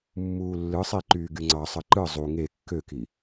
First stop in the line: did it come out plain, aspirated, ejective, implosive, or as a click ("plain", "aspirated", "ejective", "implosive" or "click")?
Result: click